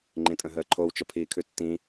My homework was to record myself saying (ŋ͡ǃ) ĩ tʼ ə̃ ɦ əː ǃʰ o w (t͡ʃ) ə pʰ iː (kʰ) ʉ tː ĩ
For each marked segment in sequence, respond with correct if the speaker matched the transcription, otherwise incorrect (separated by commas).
correct, correct, correct